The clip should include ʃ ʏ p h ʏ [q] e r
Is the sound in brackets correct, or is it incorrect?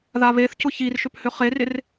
incorrect